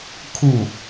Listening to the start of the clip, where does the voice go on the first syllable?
falling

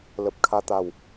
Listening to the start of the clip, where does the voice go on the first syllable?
low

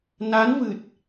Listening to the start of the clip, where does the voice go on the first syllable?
rising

